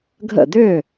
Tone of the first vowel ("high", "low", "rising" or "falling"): falling